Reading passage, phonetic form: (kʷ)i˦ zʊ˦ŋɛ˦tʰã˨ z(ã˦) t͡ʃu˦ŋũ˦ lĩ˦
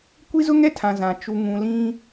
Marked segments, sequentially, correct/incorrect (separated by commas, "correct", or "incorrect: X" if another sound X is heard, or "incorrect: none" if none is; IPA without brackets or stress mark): correct, incorrect: ã˨